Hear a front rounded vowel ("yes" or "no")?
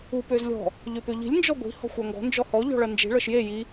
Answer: yes